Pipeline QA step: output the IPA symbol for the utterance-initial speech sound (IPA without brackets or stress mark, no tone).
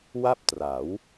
w